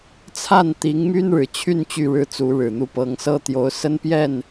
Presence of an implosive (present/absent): absent